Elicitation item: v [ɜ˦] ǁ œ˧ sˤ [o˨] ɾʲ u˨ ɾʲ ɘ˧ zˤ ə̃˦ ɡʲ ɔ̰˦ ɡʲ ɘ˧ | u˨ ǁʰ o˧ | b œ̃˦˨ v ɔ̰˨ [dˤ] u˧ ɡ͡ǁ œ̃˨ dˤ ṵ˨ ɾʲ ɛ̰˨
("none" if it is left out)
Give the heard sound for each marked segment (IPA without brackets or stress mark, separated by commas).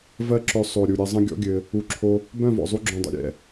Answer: ɜ˦, o˨, zˤ